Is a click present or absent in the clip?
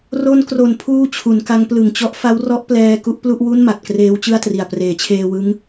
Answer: absent